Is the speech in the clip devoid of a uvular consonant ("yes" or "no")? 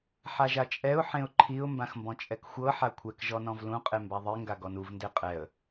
no